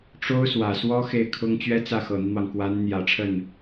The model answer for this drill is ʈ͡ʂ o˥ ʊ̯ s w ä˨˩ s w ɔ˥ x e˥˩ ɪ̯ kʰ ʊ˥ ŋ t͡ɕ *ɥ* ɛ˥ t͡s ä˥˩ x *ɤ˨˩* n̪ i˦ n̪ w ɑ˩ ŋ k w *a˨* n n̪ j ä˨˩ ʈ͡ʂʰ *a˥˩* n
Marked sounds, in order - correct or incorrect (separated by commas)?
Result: correct, correct, incorrect, incorrect